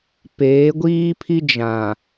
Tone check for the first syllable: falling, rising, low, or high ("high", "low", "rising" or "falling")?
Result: rising